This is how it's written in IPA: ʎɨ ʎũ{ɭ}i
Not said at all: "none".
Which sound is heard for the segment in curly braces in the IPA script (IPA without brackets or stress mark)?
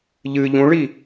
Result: ɭ